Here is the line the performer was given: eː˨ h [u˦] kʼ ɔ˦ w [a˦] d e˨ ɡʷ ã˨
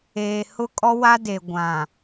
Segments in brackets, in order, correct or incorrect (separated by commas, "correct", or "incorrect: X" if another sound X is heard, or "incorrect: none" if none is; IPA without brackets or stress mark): incorrect: ʊ˦, correct